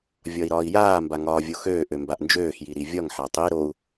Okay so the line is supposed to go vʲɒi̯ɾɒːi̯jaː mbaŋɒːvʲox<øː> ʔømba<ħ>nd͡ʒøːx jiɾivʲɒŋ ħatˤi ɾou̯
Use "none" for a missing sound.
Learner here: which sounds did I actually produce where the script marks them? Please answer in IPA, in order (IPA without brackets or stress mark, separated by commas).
øː, ʔ